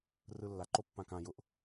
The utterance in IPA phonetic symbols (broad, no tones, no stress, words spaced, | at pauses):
rɯlːa ǃopːãkã jʊʔ